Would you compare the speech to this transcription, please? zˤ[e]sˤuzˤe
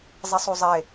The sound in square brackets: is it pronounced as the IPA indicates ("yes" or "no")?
no